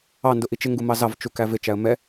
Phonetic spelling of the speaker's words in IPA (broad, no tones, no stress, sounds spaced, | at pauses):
ɑ n d ʊ ʔ i t͡ʃ ɪ ŋ ɡ u m ɑ z ɑ v t͡ʃ u k æ v ɪ t͡ʃ æ ə̯ m ɛ